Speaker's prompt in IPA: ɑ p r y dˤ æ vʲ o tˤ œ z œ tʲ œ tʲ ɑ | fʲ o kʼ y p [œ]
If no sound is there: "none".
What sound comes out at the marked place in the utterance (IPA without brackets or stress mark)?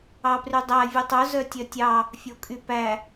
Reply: æ